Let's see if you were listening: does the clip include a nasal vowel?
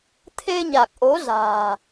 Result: no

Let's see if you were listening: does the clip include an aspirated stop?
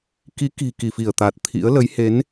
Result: yes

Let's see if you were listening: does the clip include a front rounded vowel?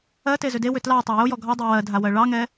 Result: yes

